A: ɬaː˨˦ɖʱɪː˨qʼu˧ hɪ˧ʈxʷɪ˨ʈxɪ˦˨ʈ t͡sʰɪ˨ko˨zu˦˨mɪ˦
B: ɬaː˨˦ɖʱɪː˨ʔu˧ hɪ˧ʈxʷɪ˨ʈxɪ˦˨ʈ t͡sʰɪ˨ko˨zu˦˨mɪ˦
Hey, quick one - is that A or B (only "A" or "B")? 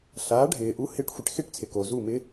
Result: B